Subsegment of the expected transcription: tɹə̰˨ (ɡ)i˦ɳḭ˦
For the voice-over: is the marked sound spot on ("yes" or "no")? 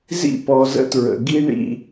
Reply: yes